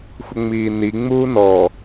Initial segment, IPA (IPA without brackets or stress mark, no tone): xʷ